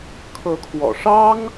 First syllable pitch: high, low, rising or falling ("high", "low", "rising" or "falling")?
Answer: rising